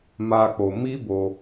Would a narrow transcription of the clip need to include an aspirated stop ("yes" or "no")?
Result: no